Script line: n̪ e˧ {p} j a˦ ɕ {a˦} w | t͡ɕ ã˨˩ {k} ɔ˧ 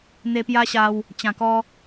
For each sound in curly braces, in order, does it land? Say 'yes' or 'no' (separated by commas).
yes, no, yes